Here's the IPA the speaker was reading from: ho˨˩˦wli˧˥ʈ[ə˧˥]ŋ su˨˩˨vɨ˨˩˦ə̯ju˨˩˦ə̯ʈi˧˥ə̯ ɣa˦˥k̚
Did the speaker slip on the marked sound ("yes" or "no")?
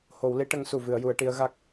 no